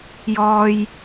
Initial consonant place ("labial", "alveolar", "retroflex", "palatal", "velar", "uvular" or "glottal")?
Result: palatal